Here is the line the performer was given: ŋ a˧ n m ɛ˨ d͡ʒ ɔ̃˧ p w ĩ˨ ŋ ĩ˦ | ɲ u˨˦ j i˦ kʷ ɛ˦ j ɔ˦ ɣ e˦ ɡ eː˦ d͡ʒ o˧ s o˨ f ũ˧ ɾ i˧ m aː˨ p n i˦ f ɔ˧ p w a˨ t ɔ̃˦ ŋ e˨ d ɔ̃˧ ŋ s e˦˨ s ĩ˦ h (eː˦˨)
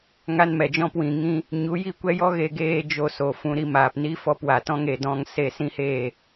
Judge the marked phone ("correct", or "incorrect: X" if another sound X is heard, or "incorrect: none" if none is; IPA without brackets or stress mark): correct